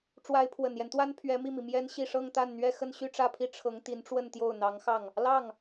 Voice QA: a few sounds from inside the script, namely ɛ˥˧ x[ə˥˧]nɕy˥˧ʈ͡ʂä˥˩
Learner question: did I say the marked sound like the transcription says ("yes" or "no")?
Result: yes